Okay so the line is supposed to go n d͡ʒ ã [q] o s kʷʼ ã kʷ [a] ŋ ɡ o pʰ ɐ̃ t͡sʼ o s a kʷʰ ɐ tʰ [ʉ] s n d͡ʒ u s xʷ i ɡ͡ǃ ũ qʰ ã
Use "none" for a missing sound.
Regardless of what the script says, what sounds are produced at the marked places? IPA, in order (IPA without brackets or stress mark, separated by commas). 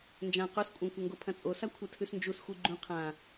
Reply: q, ɐ, ʉ